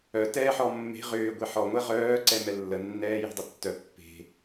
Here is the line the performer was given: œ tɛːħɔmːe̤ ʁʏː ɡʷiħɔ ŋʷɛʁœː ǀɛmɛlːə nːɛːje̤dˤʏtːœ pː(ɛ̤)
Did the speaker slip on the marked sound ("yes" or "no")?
yes